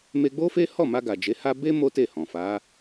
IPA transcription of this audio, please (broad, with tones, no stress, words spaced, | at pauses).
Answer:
me˧ɡ͡bo˦fe˦ hɔ˦˨ma˧ ɡa˨d͡ʒe˨˦ha˦ be˦ mo˦te˦˨hɔ̃˨ fa˨˦